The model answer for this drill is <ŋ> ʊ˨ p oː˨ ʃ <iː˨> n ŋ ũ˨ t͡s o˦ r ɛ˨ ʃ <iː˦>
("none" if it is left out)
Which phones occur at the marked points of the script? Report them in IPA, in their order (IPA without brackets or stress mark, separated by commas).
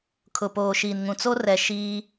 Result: kʰ, iː˨, iː˦